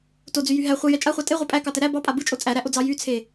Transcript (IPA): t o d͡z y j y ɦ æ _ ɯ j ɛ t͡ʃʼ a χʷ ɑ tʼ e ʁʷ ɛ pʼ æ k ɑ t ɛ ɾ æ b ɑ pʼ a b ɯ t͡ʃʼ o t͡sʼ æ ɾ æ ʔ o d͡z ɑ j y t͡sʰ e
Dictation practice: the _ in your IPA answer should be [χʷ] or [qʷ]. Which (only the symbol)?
χʷ